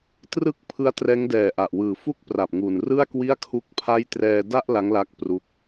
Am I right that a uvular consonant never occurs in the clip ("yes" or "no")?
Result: yes